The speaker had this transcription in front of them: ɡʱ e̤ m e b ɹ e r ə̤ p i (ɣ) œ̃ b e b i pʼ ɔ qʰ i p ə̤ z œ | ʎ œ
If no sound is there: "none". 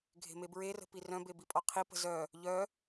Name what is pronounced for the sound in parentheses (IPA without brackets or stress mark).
r